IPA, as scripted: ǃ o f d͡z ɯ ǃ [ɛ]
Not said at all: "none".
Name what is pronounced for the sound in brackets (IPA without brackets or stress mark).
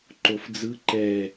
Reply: ɛ